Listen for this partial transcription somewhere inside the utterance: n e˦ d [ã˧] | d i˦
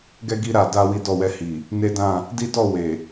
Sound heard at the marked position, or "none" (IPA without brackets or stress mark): ã˦˨